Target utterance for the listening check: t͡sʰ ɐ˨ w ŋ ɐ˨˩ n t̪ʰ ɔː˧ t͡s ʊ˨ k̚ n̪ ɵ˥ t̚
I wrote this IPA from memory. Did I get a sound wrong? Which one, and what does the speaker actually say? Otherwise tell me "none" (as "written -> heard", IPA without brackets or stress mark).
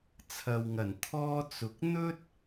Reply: none